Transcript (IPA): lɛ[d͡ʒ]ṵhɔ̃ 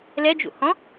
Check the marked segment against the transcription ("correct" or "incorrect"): correct